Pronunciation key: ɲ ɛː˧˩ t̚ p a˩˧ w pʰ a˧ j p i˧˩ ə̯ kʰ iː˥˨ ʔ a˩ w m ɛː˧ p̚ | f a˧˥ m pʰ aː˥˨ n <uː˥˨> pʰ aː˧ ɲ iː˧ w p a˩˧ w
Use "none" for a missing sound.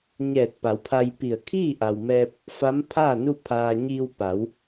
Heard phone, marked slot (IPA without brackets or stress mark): u˥˨